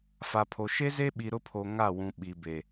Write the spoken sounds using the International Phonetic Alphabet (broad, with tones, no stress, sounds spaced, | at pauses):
f a˨ pʰ o˨ ʃ e˦ z e˦ ɓ i˨ ɾ ʊ˦ pʰ o˨ ŋ a˦˨ w ũ˨ ɓ i˨ b e˨